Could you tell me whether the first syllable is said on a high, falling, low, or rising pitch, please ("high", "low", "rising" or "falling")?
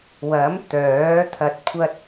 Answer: rising